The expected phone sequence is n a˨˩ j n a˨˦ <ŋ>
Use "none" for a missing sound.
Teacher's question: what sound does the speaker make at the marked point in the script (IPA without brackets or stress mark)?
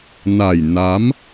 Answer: m